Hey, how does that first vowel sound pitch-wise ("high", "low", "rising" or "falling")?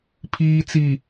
low